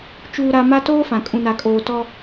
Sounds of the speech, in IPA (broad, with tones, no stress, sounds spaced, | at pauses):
t͡ʃ uː˨ ɾ a˨ m a˦ t oː˦ f ã˨ kʼ ũ˨ n a˨ kʼ oː˨ t ɔ˦